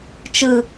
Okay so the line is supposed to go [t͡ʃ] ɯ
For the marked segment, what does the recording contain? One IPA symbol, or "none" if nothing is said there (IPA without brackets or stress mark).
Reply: t͡ʃ